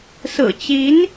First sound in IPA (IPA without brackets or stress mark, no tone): s